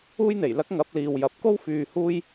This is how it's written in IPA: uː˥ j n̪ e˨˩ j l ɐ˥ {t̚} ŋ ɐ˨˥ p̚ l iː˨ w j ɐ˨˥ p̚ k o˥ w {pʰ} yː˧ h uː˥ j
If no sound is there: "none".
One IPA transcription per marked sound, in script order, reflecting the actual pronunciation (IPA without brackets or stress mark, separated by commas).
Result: k̚, f